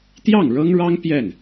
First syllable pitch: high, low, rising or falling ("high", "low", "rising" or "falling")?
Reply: falling